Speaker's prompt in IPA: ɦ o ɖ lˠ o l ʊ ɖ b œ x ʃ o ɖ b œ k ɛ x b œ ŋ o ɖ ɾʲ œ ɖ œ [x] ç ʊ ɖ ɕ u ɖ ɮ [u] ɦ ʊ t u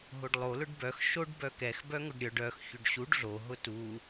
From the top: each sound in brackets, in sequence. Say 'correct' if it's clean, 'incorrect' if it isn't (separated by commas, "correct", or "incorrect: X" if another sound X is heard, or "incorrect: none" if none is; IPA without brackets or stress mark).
correct, incorrect: o